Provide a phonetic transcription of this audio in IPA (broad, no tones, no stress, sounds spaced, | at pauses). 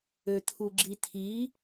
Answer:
ø t̪ʰ u ɡ͡ǁ i t̪ʰ i